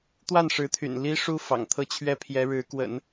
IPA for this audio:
t̪wa˥˩nʂɻ̩˧˥t̪ʰy̰˨˩n li˥ʂu˥ fɑ̰˨˩ŋt̪ʰɤ˥˩t͡ɕʰɥɛ˥ pʰjɛ˧˥ɻɻ̩˧˥kwə̰˨˩˦n

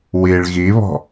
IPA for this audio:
wiɭ ɣiβɔ̤

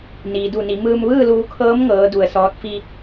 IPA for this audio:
niː˩du˧˩ni˩˧mɯː˧m ʋɯː˥˨luː˧kʰɤː˧˥m ŋɤː˧˥du˧ə̯sɔː˧˥t̚ fi˧

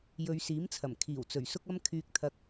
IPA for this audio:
jɵ˨˧ɥsiː˨˥mt͡sʰɐ˨˩m kʰiː˨˩wt͡sɵ˨˩ɥsʊ˧k̚ɐ˧m kʰyː˨k̚t̪ʰɐ˨k̚

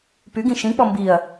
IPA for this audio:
pyɡĩ ʃĩk͡pɔ mbiɐ̯

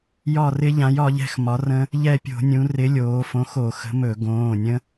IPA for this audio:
jɒ˦˨rɪ˦˥ʎã˨˥j ɒ˩˧ʎɛ̤˦˨x mɒ˨˥rə̃˦˥ | ʎɛ˦˨pʲo̤˧˩˧nʲũ˩˧ rɪ˨˥lʲoː˩˧fõ˨˥xo˧˩˧ xə̤˨˥mɵ˧˩˧ ɡõː˩˧˩ nʲə̃˦˥

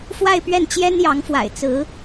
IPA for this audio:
fwa˥˧ɪ̯ pɥɛ˥˩nt͡ɕjɛ˥n jɑ˧˥ŋfwa̰˨˩ɪ̯ t͡sɹ̩˧˥

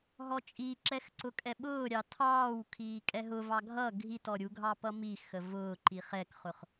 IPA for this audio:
ɦɔt͡ʃʼiǁɛxǀʊ kʼɛɓʊːɾʲɑ tʰɑːw kʰiːkʼɛɦʊ vɑɡʱʌ ɡʱit ɔɾʲuɡʱɑ pʌmi xəvʊːǃi χɛkχʊχ

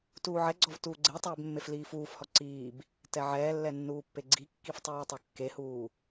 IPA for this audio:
tuːʕɛɡ͡ǀɔv tuːɡ͡ǀetˤɛːb mːefliːfuːfhɔ ǀiːb | tɛʕɛːlːɛ nːuːpːeɡ͡ǀikːif tˤuːtˤokːehuː

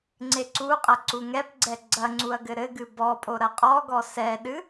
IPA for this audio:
ŋ͡ǀeǀuqʼɐ ǀuŋɛpɡ͡ǀɛ ɡ͡ǀɐŋ͡ǀuɐ̯ ɡɘɾɘɡɨ bɔpʼo ɾɐqʼɔɡɔ sɛɗɨ

